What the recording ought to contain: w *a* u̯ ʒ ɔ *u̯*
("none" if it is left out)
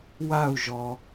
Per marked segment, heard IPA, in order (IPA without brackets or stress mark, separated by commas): a, none